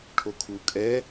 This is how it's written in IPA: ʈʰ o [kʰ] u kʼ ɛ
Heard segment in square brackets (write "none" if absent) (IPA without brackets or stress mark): kʰ